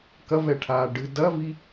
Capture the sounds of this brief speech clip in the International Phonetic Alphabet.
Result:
k ɐ v ɛ ʈʰ aː ɖ ɨ d ɐ v i

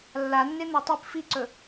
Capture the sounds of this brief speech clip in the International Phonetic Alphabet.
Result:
lː a nː e n̪ ɐ tˤ i p f i ǀ ɵ

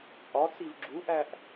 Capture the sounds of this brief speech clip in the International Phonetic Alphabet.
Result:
t͡sʼ ɒ t͡s i v ɡ͡ǁ u ʔ æ ʔ

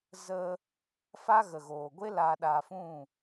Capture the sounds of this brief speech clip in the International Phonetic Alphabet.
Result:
z ə˧ | f a˦ ɣ ə˨ ɣ oː˨ ɡʷ e˦ l a˧ ɗ a˧ f ũ˦˨

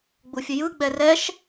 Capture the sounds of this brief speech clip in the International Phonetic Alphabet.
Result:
ɡ͡b u fʲ ə j ɯ ɡ͡b ɛ r ɛ ʃ

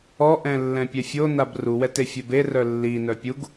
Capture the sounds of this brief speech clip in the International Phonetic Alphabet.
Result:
ɔ ʔ ɛ̃ lː ɛ̃ pʲ ɛ fʲ o n a b r u w ɛ t e fʲ ɛ b e r œ lː i n œ pʲ u ɡ

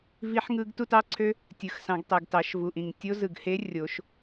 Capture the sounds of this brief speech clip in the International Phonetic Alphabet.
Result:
v i˦˥ ħ ŋ ɯ˦˥ ɡ t u˥˧ t ɑ˦˥ ǀʰ ø˦˥ | tʲ ɯ˩ x s ɑ̃˩˧ ɡ tˤ e˩ ɡ t ɑ˩˧ ʃ v u˩ ʔ ĩ˩ ŋ tʲ o˦˥ z ɯ˩ ɡ h e˦˥ rʲ o˩˧ ʃ

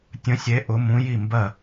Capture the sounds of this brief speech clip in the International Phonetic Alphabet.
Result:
tʲ ə̃˧˥ sʲ e˧˥ ʔ ʊ˧˥ m ũ˧˥ j i˥˨ m b ɜ˥˨

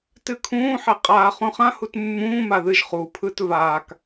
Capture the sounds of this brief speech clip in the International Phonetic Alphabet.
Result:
t ɨ kʰ ũː ħ e qʼ aː χ ũ χ ã h u t mː ũː m a ð ɨ ʒ χ u pʰ ɯ t v aː k

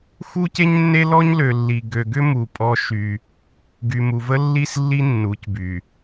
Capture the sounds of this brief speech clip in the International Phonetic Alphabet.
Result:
x u˦ c e˦ ɲ nː e˦ l ɔ˦ ɲ l ø˨ lː i˨ ɡ ø˨ ɡ ʏ˦ m u˨ pʼ ɔ˦ ʃ y˦ | ɡ y˨ m u˨ v ə˦ lː i˦ s lː i˦ nː u˨˦ c b y˨

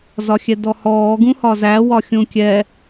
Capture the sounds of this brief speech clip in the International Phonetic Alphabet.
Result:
z ɒ xʲ ɛ d ɔ h ɔː ɡ ũ h ɒ z æ w ɒ xʲ ũ kʲ ɛ

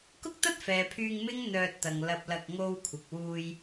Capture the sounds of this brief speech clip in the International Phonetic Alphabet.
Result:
k ʊ˥ k̚ t̪ ɐ˥ t̚ f ɛː˨ pʰ yː˧ ŋ m ɪ˥ ŋ n̪ œː˧ t̚ t̪ ɐ˨ ŋ l ɐ˧ p̚ l ɐ˧ k̚ ŋ o˧ w kʷʰ ɪ˨ k̚ w uː˧ j

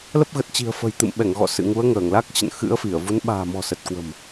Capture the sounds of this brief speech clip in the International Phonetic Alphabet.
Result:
l ə˦˥ p̚ ɣ ə˨˩ t̚ t͡ɕ i̤˨˩ ə̯ f ə̤˨˩ j t̪ ɨ̰˧˨ m ɓ ɛ˧˩ ŋ ɣ ɔ̰˧˨ s ɨ̰˧˨ ŋ u˨˦ ə̯ ŋ əː˧˩ ŋ l a˦˥ k̚ t͡ɕ ə̰˧˨ n x ɨ̰˧˥ ə̯ f i˧˩ ə̯ v u˨˦ n ɓ a̤ː˨˩ m ɔ̤˨˩ s ə˨˩ t̚ k w ə̤˨˩ m

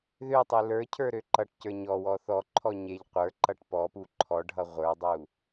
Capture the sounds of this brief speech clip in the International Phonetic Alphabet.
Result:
ð ø tˤ e l ə˞ cʰ ə˞ ɾ ø ǃ ʌ ʈ c ə˞ ɲ ɔ w ɔ θ ɔ ǃʰ ɔ ɲ e ʎ qʷ ə˞ ǃ ʌ ʈ p ɔ p u ǃʰ ɔ ɖʱ ʌ ʁʷ ə˞ dˤ u

